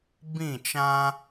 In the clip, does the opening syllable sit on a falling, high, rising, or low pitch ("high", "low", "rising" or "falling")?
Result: falling